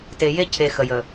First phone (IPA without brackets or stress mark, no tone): t